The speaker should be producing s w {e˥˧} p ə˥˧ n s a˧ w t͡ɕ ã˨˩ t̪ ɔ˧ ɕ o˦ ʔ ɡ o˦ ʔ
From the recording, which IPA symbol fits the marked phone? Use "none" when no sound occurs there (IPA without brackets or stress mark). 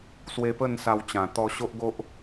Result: e˧